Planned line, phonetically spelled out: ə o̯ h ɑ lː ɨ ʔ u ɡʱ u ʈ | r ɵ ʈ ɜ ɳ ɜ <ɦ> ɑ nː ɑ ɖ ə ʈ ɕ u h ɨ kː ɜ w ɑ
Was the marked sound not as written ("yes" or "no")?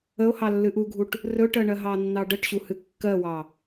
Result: no